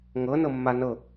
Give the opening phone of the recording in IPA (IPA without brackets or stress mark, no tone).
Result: ŋ